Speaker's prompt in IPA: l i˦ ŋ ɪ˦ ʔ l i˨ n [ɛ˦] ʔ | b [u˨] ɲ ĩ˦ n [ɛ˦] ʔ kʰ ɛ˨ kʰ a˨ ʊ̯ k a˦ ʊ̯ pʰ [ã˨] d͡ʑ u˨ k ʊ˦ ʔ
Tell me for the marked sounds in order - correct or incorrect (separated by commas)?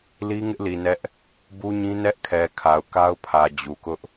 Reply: correct, incorrect, correct, incorrect